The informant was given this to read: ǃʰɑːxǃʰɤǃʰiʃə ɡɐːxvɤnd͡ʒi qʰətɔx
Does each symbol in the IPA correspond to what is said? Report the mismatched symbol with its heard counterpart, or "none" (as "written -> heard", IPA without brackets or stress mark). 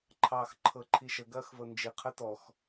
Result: none